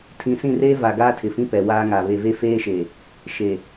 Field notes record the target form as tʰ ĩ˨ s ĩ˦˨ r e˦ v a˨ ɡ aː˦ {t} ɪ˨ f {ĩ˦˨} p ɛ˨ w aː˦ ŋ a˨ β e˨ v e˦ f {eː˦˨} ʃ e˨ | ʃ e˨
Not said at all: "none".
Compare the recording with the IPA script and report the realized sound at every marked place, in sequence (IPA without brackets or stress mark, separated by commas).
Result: tʰ, ĩ˦, eː˦